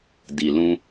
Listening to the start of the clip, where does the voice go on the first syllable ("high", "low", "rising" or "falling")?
low